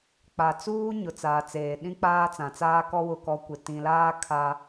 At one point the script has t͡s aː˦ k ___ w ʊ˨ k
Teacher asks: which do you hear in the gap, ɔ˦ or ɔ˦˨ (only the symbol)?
ɔ˦